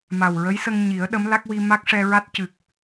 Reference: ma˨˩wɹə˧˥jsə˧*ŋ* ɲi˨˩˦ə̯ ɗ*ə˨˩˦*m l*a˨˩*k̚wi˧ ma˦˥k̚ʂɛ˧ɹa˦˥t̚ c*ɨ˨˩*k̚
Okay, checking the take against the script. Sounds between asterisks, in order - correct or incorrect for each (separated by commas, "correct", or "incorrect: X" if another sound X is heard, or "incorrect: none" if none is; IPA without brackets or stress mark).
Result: correct, incorrect: ə˧˥, incorrect: a˦˥, correct